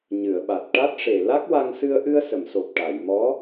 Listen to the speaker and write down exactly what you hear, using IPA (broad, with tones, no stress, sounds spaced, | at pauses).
ɲ ɨ˨˩˨ ə̯ ɓ a˨˩ t̚ ʈ a˦˥ t̚ ʂ e˨˩ l a˦˥ k̚ w a˧ ŋ s ɨ˧ ə̯ ʔ ɨ˧ ə̯ s ə˨˩˨ m s o˨˩ p̚ ʈ a˨˩˨ j m ɔ˧˥